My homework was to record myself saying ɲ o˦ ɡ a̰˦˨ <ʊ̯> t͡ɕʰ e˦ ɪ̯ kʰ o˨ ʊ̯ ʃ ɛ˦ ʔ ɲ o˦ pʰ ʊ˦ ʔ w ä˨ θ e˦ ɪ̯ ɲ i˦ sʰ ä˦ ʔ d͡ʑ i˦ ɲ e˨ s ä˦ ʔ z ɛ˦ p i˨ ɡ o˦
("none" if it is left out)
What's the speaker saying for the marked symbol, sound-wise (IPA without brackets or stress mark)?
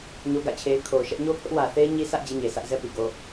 ɪ̯